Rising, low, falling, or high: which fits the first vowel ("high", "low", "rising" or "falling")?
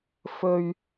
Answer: low